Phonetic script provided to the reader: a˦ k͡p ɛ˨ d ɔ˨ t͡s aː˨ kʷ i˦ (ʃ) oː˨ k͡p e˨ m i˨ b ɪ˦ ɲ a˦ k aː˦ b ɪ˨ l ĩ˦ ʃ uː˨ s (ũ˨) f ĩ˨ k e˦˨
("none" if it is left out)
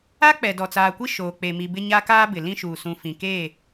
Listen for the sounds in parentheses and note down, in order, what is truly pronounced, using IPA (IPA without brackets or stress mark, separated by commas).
ʃ, ũ˨